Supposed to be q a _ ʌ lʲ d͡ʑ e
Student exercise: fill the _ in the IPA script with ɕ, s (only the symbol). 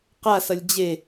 s